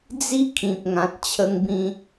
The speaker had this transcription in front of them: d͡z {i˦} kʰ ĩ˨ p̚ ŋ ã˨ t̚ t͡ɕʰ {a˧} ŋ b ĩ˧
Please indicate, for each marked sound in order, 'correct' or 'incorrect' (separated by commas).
correct, incorrect